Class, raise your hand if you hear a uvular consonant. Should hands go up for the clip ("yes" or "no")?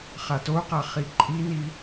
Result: yes